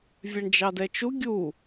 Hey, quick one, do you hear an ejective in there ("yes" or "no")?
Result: no